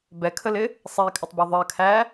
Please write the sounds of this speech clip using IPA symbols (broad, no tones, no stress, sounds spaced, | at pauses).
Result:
b ɛ kʰ ə l ɪ | sˤ ɛ i̯ kʼ ə tˤ b u ðˤ ɜ kʰ æ